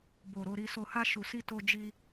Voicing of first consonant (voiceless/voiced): voiced